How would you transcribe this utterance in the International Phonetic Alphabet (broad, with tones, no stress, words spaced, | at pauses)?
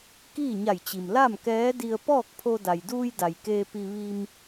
kiː˥˨ɲa˧˩jt͡ɕi˩m la˥˨mkɛː˧˥ di˧ə̯pɔː˥˨k̚pʰo˧ da˩jduː˧jda˩j keː˧pi˧ ʋi˧m